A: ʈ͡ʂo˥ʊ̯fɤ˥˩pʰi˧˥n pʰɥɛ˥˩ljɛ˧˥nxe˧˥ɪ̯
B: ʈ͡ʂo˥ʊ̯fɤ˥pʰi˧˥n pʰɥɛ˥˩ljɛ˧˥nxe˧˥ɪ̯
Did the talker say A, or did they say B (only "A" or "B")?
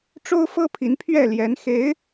B